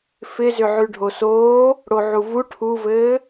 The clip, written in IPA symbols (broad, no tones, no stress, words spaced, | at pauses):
fɪzʏʕʉ ɖʱosoː | ɽoʕuvu ʈʰuvɘː